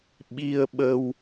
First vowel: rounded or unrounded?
unrounded